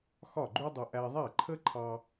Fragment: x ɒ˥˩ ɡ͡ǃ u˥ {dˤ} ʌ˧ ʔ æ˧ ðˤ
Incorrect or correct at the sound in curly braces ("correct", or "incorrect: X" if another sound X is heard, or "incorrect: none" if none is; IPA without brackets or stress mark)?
correct